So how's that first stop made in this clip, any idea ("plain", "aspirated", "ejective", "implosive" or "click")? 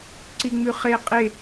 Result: click